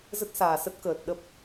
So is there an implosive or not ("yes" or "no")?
yes